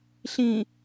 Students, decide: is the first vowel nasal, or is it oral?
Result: nasal